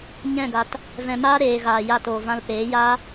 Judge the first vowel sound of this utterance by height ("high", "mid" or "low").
mid